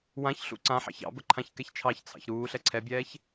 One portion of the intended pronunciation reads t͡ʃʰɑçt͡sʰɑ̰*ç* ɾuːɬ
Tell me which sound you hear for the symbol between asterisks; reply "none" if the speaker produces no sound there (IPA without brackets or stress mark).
ç